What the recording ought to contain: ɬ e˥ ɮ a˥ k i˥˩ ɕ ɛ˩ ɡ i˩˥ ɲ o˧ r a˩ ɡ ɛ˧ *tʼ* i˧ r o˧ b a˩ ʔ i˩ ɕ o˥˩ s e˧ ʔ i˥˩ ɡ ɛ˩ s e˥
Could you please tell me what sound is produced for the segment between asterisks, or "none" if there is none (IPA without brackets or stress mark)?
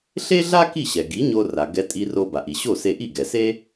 tʼ